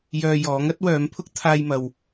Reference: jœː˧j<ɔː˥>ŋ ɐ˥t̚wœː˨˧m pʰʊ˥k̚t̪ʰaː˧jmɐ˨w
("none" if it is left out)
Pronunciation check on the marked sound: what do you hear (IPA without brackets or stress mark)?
ɔː˨˥